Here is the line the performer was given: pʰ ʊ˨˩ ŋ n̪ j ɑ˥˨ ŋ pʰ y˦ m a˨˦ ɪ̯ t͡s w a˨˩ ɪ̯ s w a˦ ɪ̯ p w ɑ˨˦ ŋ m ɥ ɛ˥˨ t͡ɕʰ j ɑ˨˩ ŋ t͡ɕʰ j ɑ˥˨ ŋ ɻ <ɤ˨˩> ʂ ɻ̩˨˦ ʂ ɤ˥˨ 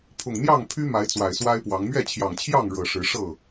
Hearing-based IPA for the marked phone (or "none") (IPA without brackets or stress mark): ɤ˨˩